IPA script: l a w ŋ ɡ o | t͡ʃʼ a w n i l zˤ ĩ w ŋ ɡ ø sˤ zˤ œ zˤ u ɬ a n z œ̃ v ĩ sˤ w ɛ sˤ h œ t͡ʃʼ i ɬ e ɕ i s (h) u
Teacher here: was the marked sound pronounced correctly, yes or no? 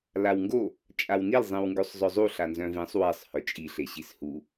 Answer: yes